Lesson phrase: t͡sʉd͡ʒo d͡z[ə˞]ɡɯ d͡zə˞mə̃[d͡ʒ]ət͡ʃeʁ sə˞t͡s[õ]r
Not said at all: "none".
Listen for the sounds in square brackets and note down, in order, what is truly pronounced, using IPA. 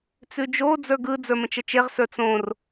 ə˞, t͡ʃ, õ

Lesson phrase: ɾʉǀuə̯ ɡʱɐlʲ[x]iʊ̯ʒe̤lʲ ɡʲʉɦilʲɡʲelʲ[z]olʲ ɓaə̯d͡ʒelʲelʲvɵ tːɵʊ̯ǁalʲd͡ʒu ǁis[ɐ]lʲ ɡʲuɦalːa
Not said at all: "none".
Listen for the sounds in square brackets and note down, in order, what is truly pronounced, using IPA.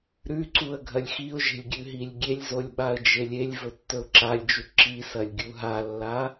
x, z, ɐ

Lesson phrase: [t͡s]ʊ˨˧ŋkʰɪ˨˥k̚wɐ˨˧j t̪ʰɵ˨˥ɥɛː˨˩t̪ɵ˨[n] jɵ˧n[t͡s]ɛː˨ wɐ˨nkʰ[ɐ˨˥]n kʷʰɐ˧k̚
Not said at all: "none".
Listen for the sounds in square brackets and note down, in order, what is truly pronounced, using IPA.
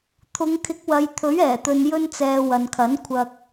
t̪ʰ, n, t͡s, ɐ˨˥

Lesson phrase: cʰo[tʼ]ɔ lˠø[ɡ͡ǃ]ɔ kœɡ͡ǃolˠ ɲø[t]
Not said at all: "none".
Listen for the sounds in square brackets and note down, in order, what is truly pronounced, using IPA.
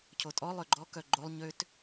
tʼ, ɡ͡ǃ, t

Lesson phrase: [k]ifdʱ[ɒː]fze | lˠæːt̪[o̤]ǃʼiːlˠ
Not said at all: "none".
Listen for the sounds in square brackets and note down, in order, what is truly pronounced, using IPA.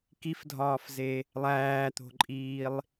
k, ɒː, o̤

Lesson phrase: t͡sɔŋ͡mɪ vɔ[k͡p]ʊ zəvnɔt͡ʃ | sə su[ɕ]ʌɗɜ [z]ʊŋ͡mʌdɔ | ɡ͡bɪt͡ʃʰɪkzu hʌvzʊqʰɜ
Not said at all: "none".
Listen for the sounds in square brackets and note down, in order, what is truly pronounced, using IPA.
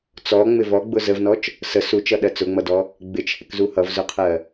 ɡ͡b, t͡ʃ, t͡s

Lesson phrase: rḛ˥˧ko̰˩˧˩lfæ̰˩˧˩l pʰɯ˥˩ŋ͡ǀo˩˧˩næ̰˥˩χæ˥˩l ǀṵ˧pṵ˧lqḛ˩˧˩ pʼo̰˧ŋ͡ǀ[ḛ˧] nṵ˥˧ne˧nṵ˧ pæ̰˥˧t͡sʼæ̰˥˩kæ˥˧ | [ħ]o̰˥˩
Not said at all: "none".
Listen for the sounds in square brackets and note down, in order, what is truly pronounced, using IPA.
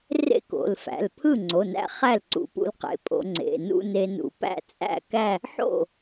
ḛ˩˧˩, ħ

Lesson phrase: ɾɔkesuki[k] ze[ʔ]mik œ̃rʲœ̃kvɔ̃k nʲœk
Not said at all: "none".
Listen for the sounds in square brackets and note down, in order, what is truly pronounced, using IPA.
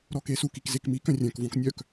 k, k

